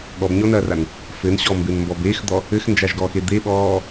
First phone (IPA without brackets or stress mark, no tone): ɠ